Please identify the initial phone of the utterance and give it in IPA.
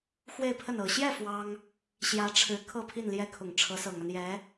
x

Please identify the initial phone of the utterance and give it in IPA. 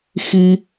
x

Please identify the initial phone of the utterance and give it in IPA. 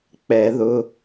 k͡p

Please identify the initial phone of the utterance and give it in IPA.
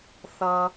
θ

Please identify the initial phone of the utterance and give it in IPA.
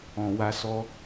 ɔ̃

